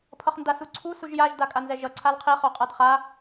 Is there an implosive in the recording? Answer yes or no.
no